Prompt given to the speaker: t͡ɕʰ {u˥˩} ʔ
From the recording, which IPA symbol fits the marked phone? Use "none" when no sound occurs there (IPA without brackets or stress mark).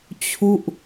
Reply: u˥˩